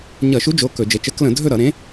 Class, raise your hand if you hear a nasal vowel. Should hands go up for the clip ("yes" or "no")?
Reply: yes